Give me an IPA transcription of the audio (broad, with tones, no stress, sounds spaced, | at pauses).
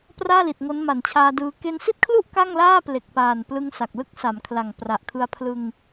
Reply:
p r aː˥˩ l i˨˩ t̚ ŋ o˦˥ n m a˩˦ n t͡ɕʰ aː˧ d ɯː˧ k e˧ n s i˥˩ t̚ kʰ l u˥˩ ʔ k a˥˩ ŋ l aː˥˩ p l e˨˩ k̚ p aː˨˩ n p l ɯ˧ ŋ s a˨˩ k̚ l ɯ˥˩ k̚ s a˩˦ m kʰ l a˨˩ ŋ p r a˨˩ ʔ kʰ ɯ˧ a̯ pʰ l ɯ˧ ŋ